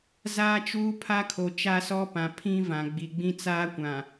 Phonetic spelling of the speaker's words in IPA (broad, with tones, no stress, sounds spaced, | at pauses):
z aː˦ t͡ʃ uː˦ pʰ a˦ kʰ o˨ t͡ʃ a˦ s ɔ˦ p ã˨ pʰ ĩ˦ v ã˨ ɡ͡b i˨ ɡ͡b ĩ˦ t͡s aː˦ kʷ ã˨